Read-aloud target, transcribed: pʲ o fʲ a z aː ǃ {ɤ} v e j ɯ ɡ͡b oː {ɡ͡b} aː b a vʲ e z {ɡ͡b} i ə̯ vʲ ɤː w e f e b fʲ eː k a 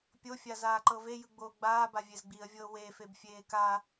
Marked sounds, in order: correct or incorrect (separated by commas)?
correct, correct, correct